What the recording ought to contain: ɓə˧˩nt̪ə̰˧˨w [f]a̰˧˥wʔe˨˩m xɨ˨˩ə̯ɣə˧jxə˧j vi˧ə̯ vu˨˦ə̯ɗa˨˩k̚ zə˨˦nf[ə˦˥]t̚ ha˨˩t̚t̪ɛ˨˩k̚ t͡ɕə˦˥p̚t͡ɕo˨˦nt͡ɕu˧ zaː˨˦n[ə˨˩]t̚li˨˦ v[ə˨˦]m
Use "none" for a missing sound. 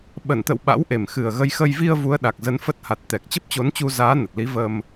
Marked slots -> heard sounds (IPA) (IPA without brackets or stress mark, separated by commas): ɓ, ə˦˥, ə˨˩, ə˧